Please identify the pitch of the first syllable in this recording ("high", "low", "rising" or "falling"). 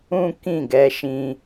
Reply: high